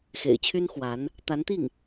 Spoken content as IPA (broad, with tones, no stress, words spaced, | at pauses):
xḛ˨˩ɪ̯t͡ɕʰy˥n xwa˧˥n | t̪a˧˥nt̪i˥˩ŋ